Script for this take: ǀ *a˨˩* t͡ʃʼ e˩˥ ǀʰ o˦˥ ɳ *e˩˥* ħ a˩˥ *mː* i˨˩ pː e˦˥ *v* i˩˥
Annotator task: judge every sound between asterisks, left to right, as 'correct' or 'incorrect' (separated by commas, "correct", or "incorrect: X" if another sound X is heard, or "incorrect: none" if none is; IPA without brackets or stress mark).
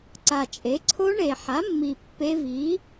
correct, incorrect: e˨˩, correct, correct